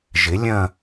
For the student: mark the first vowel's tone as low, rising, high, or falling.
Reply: rising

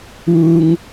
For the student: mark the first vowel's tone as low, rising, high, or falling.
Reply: high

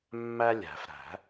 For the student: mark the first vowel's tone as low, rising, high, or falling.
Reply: high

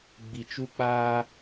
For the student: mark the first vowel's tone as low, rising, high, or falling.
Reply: low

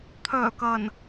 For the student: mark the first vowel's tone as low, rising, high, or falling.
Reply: low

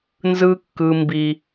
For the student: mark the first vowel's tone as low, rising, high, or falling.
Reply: high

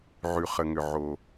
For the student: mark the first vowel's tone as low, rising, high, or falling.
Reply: low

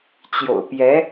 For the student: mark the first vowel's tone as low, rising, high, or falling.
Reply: low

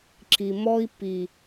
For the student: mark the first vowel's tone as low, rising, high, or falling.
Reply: low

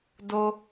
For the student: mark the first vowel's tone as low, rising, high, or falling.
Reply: low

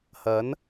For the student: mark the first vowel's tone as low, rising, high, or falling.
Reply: rising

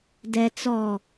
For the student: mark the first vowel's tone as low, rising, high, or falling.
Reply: low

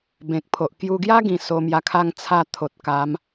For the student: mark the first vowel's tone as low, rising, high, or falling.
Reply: low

